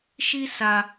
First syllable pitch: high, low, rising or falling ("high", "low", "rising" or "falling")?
high